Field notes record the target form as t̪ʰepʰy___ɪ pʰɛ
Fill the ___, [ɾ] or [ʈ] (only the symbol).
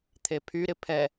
ɾ